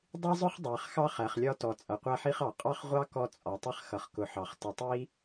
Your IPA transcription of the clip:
dˤi˥zˤʊ˥χdˤæ˨χ xɑ˥χæ˨χlʲɒ˦tɔ˨ t͡sʼʌ˨qʷæ˥ħi˥χɑ˩ qʼɑ˥χʁʷɑ˥ kɔ˦ t͡sʼɒ˨tˤɪ˥χ xʌ˨χkʊ˨ħɑ˩χ tə˨tˤi˥

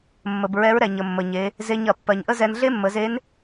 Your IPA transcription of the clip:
mːə˩b ɹɛ˧˥ɹɾɛ˩ ɲə˩mːə˩ɲe˩˧ | ze˧ɲɐ˩ pːɜ˩ɲʔə˥zɛ˧n ɮe˥mːə˩˧ze˧˥n

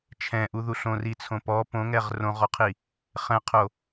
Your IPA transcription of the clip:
t͡ʃʰɛ̃ʔuðuɬ õrit͡sʰõ pɔ põŋɛʁ rõʁɔqʰi | χɛ̃qʰo

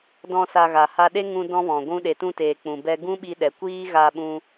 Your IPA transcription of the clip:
dɔ̃˧ sa˧ɣa˨ ha˧ɗe˦ ŋũ˧ dɔ̃˦vɔ̃˨ ɡʷũ˧ɗe˨tũ˧teː˨ k͡pũ˨bɛ˧ ɡũ˦ɓi˧ɗɛ˨kʷiː˦ ɣa˧ɓũ˧

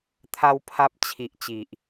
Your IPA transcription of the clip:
t̪ʰa˦wpʰa˦p̚ t͡ɕʰi˨ʔ t͡ɕi˨ʔ

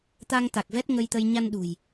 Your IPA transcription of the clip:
t̪a˧ŋ t̪a˨˩k̚vɛ˦˥t̚ŋə˧jt̪ə˧j ɲa˧nɗṳ˨˩j

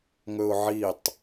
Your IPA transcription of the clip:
ŋɵʊ̯ʕitˤ

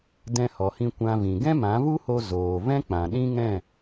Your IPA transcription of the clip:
dɛ̃˧hɔ˨hĩ˧ kʷã˧vĩ˨ ɡɛ̃˦mã˨˦vu˦ho˧ zoː˨vɛ̃˦ k͡pã˨ɗĩ˦ŋɛ̃˦˨

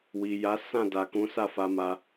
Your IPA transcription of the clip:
wi˨ja˨˦sã˦˨ da˨kũ˨˦sa˦˨ fa˧ma˧

